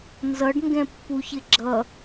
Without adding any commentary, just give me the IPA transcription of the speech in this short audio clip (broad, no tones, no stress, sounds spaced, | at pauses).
n z ʌ ɖ ŋ ɡ ɛ̃ pː u ç ɪ ɡ͡ǁ ʌ